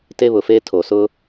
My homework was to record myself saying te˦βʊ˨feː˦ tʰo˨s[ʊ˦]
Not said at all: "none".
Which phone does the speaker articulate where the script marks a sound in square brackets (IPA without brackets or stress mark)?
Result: ʊ˦